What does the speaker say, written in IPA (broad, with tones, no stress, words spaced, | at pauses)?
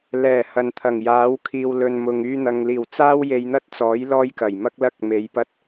lɛː˨˩ hɐ˨n t̪ʰɐ˨˩ŋjaː˨˥w kʰiː˨wlɵ˨nmʊ˨ŋ yː˧n̪ɐ˨ŋliː˨˩w t͡saː˥wje˧jn̪ɐ˥t̚t͡sɔː˨˥j lɔː˥jkɐ˨˩jmɐ˥k̚lɐ˥k̚ me˨˧jpɐ˥t̚